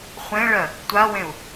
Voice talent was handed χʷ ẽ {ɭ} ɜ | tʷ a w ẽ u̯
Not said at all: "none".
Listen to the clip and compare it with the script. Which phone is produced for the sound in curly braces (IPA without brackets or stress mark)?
ɭ